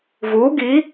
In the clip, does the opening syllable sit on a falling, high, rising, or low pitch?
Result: rising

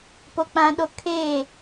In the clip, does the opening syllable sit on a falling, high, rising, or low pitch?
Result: high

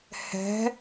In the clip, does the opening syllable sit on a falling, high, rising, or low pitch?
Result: rising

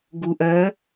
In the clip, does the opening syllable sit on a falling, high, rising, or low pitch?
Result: low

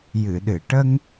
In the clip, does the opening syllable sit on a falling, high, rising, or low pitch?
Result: low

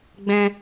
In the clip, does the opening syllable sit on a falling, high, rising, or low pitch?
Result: high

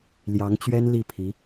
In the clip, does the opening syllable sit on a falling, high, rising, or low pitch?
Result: rising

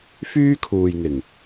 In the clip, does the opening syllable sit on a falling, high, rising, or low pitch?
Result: high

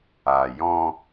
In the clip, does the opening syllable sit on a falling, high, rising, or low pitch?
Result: low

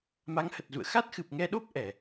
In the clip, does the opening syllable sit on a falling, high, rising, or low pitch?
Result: rising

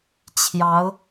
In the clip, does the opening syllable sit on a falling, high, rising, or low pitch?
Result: rising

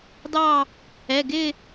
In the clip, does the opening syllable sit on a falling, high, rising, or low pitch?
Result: falling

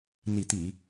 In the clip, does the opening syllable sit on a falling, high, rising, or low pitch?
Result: low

